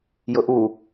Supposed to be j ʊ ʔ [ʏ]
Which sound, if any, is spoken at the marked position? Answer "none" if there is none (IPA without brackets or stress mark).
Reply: u